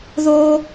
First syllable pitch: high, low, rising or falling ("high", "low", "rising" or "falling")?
high